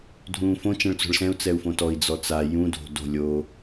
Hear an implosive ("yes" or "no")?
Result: no